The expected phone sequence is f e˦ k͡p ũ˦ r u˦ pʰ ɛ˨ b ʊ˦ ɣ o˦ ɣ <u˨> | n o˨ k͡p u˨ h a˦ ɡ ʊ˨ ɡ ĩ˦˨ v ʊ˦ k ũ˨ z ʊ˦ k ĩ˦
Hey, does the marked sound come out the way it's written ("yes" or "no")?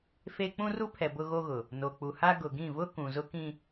no